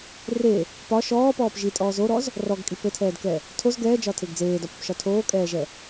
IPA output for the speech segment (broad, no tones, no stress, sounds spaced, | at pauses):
r e | p ɒ ʃ ɔː p ɔː p ʒ i tʼ ɔː z o ɾ ɔ z | r ɔ ɡ kʼ i p ɘ tʰ ɛː d k ɛ | tʰ o z ɡ ɛː d͡ʒ ɒ tʰ e ɡ d͡z eː d ɒ p ɘ p ʃ ɒ tʰ oː kʼ ɛː ʒ ɛ